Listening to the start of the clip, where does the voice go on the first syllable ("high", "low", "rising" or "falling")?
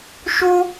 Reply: high